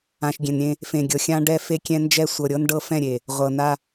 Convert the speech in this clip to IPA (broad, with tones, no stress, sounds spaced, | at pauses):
ã˨ ʃ ɡʲ ẽ˨ n ɾʲ ẽ˦ | f ẽ˨ ɡʲ ɤ˨ xʲ ã˦ ɖ ɛ˦ f e˦ kʲ ɛ̃˦ n d͡ʒ ɛ˦ sʷ ɤ˨ ɾʲ ɤ˦ n ɖ ɤ˦ f ɛ̃˦˨ ɾʲ e˨ | ʁʷ ɤ˨ n a˦